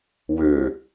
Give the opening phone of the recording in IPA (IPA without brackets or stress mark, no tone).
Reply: w